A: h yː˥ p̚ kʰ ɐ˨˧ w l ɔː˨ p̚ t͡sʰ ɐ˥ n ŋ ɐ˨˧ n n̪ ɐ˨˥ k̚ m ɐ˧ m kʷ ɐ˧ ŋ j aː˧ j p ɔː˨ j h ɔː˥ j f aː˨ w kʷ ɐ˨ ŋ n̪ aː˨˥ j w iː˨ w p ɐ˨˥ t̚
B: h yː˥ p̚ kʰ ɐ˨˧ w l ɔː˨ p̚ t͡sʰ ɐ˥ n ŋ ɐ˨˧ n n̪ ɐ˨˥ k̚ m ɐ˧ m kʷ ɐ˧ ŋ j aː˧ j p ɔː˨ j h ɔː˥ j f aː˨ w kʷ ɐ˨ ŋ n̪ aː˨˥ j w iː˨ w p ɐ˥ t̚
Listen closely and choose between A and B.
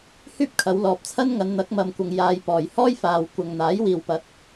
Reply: A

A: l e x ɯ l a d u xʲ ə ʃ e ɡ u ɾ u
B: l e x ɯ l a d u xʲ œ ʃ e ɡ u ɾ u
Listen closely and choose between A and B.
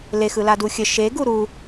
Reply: A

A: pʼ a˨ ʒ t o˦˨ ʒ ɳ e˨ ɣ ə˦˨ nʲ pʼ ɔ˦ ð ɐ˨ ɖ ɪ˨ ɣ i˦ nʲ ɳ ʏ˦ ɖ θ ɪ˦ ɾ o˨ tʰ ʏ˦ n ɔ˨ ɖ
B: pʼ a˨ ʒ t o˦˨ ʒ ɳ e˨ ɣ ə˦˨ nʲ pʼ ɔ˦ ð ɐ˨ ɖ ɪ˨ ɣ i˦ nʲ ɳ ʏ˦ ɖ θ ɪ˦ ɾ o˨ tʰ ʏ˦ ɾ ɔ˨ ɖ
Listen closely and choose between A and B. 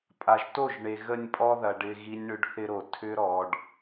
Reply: B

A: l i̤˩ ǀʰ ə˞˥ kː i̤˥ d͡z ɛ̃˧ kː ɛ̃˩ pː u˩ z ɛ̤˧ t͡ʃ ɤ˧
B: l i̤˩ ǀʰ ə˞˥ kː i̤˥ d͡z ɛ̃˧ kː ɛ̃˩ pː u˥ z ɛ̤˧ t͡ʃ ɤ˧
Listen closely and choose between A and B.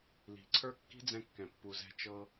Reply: A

